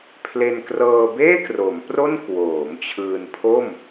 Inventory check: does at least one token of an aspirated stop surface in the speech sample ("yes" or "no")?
yes